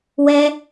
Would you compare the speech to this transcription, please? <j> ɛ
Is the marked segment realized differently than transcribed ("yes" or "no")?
yes